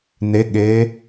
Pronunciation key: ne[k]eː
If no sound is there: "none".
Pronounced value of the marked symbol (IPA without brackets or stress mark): ɠ